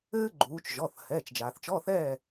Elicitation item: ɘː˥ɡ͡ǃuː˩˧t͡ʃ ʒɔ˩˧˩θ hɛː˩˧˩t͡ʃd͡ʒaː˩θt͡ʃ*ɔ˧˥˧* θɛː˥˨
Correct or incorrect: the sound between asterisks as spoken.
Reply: correct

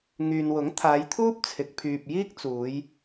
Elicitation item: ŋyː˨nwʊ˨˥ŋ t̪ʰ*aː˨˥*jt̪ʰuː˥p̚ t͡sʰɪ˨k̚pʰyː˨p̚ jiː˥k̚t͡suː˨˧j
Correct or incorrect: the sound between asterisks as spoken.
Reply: incorrect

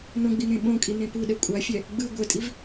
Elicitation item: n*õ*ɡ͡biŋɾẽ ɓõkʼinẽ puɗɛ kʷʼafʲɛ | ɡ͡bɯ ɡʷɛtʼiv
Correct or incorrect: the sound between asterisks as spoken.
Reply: correct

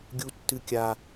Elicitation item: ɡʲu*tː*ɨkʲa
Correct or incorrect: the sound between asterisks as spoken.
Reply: correct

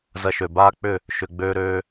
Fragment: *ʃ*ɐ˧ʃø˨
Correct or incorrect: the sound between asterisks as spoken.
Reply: incorrect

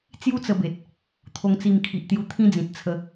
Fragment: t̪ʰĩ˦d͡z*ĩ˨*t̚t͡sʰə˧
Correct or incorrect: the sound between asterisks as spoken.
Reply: correct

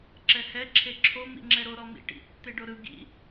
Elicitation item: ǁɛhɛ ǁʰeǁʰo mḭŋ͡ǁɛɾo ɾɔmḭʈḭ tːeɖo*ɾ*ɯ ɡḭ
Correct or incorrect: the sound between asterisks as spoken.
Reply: correct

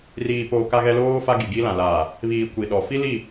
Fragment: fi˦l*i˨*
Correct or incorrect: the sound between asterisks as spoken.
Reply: incorrect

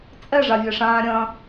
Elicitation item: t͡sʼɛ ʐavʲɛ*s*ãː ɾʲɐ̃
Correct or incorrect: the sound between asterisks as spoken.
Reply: incorrect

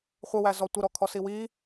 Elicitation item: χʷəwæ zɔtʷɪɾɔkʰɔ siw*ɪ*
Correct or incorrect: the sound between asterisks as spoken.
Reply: incorrect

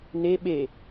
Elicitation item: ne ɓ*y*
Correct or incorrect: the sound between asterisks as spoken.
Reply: incorrect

